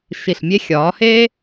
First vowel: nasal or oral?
oral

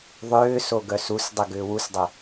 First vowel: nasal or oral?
oral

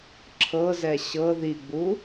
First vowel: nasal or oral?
oral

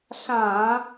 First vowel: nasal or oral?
nasal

